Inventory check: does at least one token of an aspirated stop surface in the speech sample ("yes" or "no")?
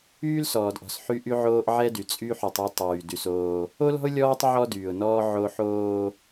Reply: no